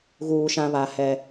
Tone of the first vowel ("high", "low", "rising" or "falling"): low